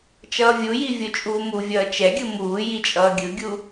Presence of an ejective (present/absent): present